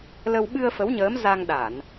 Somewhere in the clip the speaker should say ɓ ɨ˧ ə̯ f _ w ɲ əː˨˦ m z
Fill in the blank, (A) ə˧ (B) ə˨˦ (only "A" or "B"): B